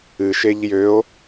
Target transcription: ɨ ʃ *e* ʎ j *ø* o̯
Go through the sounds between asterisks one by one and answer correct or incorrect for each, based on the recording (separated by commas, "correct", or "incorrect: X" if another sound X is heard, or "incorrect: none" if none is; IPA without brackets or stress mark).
correct, correct